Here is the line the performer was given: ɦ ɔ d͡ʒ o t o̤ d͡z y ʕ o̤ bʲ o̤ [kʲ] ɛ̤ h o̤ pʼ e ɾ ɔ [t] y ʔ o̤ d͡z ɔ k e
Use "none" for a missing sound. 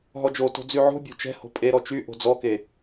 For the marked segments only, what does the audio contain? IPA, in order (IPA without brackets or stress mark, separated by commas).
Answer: t͡ʃ, t͡ʃ